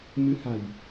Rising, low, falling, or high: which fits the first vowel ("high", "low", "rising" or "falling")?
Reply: rising